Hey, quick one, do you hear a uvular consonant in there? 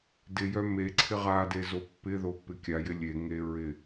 yes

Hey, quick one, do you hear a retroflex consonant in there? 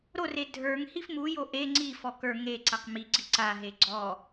no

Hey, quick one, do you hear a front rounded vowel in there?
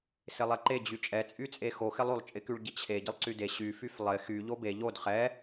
yes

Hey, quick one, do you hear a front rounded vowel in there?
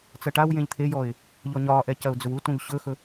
no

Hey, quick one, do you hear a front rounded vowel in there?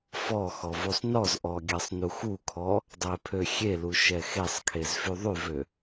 yes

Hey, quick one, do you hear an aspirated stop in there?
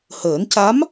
no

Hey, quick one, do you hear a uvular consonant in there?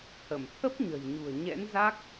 no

